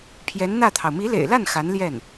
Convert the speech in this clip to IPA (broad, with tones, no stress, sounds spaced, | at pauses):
pʰ j ɛ˧˥ n n̪ ä˥˩ t̪ʰ ɑ˩ ʊ̯ m i˧˥ l ḛ˨˩ ɪ̯ l a˥˩ n x a˧˥ n l j ɛ˥˩ n